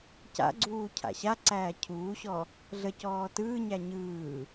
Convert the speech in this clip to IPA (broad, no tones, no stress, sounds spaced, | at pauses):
c a̰ ɡ͡ǀ uː cʰ a̰ ɕ a ǀ æː cʰ uː ɕ ɔ | ɮ ə c ɔː t ɯː ɲ æ ɲ ɯː